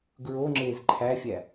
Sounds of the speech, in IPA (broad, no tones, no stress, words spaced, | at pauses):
ɡɹoŋ͡ǁeːz ǃʰæfʲæ